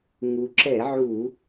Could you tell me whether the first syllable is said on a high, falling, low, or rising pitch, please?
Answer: low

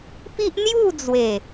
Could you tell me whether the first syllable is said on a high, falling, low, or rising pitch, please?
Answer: high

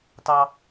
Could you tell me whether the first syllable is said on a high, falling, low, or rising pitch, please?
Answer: high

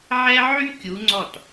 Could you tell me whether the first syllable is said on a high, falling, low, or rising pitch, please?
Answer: high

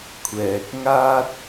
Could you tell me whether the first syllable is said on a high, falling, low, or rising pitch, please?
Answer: low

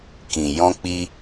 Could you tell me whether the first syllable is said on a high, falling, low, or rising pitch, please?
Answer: low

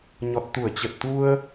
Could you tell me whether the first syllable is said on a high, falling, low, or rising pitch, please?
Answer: low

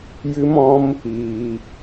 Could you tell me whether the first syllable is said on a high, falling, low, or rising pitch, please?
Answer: high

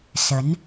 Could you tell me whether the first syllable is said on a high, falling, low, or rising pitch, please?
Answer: rising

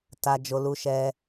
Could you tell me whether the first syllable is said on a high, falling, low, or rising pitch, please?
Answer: high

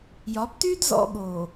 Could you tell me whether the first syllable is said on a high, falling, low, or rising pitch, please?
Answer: rising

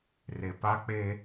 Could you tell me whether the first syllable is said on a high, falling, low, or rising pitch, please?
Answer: low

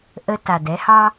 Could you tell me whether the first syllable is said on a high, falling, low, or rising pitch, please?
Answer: low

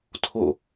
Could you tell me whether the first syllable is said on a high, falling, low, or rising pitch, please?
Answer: falling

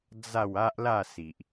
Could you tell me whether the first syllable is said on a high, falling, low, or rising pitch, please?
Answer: falling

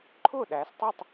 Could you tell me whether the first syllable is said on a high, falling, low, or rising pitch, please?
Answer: falling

